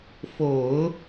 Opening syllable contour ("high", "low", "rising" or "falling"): low